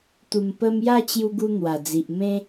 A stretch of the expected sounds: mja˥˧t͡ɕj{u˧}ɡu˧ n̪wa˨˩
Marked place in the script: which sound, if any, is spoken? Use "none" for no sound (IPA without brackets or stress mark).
u˧